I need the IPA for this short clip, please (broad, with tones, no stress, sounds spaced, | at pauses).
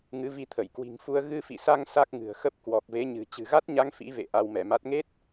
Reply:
ŋ ɨ˨˦ v i˧ t̪ʰ ə˧˩ j k w i̤˨˩ ŋ f u˧ ə̯ ɣ ɨ˧ f ḭ˧˨ s a˧ ŋ s a˦˥ k̚ ŋ ɨ̤˨˩ ə̯ x ə˦˥ p̚ k w ɔ˨˩ k̚ v e˨˦ ɲ ɨ̤˨˩ t͡ɕ ɨ̤˨˩ ɣ a˦˥ t̚ ɲ a˧ ŋ f ḭ˧˥ v ḛ˧˨ ʔ a˧ w m ɛ˧˩ m a˦˥ t̚ ŋ e˦˥ t̚